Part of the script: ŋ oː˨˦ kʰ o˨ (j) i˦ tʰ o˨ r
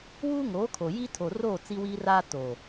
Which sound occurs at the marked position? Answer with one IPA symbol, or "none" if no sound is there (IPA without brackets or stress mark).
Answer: j